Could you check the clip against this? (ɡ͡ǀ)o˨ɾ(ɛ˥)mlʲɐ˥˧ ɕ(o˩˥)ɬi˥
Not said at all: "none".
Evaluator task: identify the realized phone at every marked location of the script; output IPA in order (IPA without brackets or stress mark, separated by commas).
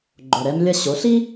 ɡ͡ǃ, ɛ˥, o˩˥